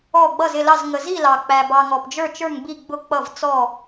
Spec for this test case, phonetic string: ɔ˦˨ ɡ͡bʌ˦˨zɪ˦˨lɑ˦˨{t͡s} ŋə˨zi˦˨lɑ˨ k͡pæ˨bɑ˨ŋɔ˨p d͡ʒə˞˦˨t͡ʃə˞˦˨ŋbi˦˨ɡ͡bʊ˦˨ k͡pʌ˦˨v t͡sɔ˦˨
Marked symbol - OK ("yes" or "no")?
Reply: no